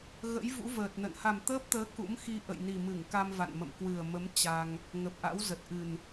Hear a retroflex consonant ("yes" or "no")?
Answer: no